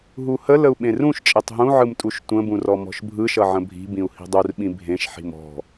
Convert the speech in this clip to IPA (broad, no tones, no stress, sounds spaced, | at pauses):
ɦ u h ə l ə u̯ ɓ ẽ r ũ ʃ t͡ʃʼ e tˤ ɦ ũ ʕ ɯ m tʼ u ʃ tʷ ə̃ b ũ r ɔ m ɔ̤ ʃ bʱ ɯ ʃ ʌ ʕ ə̃ bʱ i̤ b ĩ u̯ h i̤ dˤ u r ɓ ĩ bʱ ẽ ʃ ħ i̤ m ɔ̤